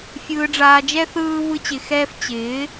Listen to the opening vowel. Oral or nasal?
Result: oral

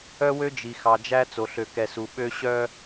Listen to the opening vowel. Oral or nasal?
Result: oral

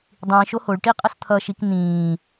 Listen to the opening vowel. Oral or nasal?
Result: nasal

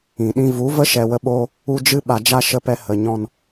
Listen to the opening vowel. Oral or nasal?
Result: nasal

